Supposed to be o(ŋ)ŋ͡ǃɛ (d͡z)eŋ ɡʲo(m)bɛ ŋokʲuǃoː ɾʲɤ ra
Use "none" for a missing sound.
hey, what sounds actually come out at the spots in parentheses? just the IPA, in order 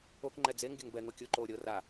k, d͡z, ŋ

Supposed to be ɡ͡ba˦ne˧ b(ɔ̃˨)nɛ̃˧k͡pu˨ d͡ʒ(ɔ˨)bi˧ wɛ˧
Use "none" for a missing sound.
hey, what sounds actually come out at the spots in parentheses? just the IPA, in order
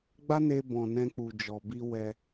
ɔ̃˨, ɔ˨

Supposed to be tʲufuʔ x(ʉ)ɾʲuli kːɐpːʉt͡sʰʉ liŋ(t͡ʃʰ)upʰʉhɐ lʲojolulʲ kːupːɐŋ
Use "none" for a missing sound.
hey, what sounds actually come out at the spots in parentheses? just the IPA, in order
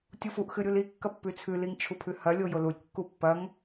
ɨ, t͡ʃʰ

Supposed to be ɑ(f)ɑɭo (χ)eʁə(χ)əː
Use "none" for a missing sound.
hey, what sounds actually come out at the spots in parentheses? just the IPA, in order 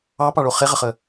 p, χ, χ

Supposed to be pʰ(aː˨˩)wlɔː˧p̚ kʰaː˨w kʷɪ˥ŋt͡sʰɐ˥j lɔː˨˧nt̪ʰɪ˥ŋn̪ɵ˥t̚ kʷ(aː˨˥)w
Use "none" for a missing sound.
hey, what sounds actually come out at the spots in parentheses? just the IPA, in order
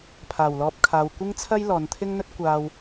aː˨˩, aː˧

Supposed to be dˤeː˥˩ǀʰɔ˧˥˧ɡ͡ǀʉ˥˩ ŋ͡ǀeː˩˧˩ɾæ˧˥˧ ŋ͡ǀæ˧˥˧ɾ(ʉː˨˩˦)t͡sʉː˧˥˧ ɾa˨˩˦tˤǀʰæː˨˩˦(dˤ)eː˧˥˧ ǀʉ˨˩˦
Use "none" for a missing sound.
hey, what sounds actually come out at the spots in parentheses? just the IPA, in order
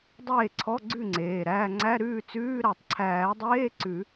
ʉː˥˩, dˤ

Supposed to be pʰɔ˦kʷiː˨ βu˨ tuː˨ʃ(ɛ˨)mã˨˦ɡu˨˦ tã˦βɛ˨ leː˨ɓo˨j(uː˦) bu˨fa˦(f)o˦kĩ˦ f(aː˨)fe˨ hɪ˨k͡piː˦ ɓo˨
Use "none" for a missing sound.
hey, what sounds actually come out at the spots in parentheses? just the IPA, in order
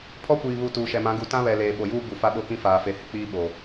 ɛ˨, uː˦, ɓ, aː˨

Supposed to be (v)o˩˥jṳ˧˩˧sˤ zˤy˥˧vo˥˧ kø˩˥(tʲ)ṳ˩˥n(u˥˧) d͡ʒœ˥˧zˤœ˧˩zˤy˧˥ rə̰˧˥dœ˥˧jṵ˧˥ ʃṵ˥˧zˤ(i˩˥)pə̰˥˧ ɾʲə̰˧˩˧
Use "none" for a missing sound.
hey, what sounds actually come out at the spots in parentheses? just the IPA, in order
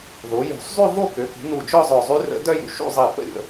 ð, k, u˧˩, i˧˩

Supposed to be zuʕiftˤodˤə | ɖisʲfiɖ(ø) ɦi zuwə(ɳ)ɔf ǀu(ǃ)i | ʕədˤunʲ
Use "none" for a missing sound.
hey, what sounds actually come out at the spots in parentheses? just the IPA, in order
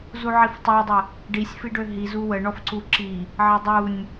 ø, ɳ, ǁ

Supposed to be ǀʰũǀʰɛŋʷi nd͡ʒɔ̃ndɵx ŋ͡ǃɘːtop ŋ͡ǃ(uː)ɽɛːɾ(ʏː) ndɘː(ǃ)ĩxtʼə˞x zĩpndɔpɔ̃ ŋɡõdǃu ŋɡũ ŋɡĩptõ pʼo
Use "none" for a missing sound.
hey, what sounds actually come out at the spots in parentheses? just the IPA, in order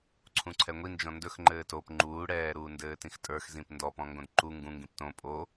uː, uː, t

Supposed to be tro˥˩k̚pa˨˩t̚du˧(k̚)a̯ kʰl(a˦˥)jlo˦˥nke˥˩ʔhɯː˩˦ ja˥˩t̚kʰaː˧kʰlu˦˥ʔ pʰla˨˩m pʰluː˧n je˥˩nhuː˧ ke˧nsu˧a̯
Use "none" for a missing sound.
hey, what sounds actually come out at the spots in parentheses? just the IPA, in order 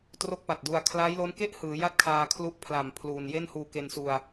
none, a˦˥

